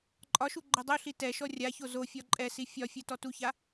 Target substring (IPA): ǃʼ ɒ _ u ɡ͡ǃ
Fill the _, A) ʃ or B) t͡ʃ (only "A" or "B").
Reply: A